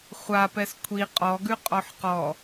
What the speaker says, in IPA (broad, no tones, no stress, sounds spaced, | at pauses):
χʷ a p ɛ s kʷʰ i qʼ ɔ ɡ ʉ qʼ ɔ ħ q ɔ